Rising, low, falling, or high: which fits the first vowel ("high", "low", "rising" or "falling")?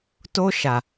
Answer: high